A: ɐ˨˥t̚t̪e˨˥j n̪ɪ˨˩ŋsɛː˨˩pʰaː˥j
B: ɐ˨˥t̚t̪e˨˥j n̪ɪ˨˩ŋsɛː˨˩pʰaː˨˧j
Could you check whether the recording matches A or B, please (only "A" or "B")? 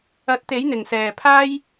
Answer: A